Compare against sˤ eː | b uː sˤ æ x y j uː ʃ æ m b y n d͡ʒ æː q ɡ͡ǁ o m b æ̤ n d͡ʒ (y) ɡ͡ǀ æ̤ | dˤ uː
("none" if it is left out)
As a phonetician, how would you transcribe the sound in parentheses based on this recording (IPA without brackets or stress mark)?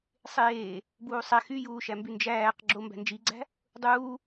i